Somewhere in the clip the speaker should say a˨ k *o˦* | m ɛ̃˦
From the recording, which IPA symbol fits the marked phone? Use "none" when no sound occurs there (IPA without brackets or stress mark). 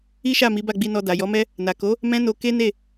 o˨˦